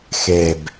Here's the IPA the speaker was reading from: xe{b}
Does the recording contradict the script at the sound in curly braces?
no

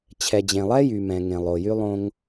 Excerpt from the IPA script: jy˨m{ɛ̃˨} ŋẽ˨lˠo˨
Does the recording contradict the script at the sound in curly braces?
no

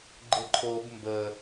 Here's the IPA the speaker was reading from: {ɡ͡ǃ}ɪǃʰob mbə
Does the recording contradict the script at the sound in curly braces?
no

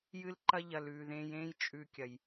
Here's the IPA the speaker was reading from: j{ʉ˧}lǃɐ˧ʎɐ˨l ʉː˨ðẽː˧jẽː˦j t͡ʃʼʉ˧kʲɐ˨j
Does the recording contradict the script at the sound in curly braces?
yes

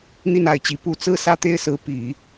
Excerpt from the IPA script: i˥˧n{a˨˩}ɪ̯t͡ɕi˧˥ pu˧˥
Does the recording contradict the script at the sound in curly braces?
yes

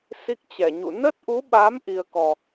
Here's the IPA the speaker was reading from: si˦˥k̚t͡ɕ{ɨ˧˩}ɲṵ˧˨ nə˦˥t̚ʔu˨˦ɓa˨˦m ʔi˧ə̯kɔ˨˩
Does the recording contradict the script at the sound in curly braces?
yes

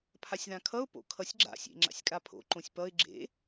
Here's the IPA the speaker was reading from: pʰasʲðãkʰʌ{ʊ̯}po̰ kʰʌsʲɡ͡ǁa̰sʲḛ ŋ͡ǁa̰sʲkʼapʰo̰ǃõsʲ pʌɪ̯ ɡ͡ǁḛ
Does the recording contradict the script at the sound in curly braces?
no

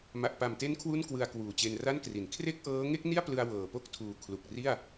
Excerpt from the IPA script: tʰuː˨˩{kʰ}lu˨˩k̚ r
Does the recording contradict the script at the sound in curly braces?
no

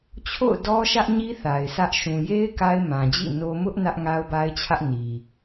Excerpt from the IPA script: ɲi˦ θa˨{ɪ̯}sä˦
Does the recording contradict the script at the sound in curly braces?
no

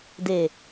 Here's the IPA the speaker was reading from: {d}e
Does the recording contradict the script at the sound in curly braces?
no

